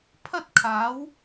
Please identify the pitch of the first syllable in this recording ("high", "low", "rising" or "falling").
high